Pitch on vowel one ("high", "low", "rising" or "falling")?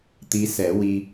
rising